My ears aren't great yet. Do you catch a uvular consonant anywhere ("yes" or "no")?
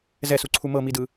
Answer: no